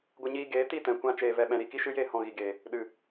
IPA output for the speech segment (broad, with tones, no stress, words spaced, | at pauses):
ɡʷə˧ɲiː˧ ɡeː˨˦ ti˦˨tɛ̃˨kʷã˧ t͡ʃeː˨vɛ˨ɓɛ̃˨ ɾi˦˨ki˦ʃɨ˦jeː˦ hɔ̃˧ɣi˨ɡeː˨ | ɗɨ˨